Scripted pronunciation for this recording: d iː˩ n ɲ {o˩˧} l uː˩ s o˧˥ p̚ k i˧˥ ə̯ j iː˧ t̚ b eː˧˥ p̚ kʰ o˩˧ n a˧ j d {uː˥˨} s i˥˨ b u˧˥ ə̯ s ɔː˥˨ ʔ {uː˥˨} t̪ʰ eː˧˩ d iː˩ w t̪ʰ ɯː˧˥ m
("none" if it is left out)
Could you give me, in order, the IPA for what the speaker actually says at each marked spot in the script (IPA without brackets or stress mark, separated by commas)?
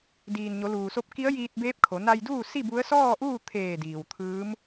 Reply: o˩˧, uː˥˨, uː˥˨